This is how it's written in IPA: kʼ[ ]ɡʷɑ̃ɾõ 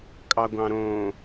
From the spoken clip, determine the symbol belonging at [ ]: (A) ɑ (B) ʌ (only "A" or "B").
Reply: A